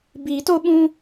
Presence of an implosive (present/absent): present